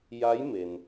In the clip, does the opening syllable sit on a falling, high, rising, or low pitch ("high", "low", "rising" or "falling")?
rising